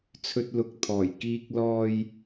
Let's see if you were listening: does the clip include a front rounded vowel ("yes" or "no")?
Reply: no